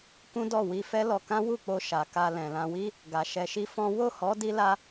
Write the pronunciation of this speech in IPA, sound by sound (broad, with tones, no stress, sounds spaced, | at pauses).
k ũ˦ d ɔ˦˨ w i˧ f ɛ˦ l ɔ˧ k ã˦ w u˦˨ k͡p o˧ ʃ a˨ k a˧ l ɛ̃˨ l ã˧ w i˦ | ɡ a˨ ʃ ɛ˧ ʃ i˦ f ɔ̃˦ w o˦˨ h ɔ˨˦ d i˦ l a˦